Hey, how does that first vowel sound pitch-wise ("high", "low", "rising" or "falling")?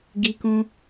high